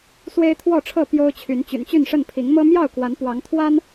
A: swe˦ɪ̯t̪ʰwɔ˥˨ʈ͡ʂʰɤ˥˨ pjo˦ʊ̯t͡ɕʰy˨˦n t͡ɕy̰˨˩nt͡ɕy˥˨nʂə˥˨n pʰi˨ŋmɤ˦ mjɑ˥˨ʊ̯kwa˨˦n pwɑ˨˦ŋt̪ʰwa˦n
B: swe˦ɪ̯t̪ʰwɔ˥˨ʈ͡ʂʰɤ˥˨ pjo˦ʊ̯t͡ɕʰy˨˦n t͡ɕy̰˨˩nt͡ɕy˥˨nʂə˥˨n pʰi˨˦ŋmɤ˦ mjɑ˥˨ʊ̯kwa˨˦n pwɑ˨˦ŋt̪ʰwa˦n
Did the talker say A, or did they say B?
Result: B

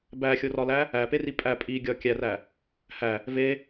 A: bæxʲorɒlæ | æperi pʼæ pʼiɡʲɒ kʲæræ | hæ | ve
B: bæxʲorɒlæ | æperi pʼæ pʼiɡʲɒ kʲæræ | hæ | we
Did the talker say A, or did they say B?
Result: A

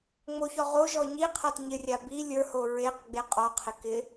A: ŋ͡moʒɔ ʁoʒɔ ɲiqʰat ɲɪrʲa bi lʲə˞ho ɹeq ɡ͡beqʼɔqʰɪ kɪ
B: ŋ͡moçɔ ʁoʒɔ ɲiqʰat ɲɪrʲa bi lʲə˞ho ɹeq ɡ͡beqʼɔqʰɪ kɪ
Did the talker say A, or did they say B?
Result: B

